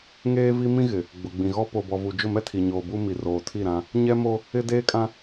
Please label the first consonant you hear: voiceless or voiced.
voiced